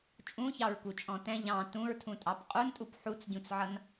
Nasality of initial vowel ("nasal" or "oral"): nasal